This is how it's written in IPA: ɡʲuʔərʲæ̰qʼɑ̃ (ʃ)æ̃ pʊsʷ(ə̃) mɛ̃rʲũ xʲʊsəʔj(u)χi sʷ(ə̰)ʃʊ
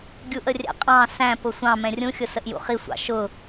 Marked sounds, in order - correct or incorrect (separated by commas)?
incorrect, incorrect, incorrect, incorrect